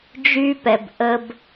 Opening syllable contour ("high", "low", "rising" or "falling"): high